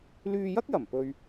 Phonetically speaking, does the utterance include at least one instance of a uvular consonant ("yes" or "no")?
no